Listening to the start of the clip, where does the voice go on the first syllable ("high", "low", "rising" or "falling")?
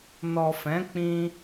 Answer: low